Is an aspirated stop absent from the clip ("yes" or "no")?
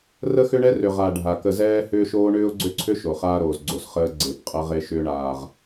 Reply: no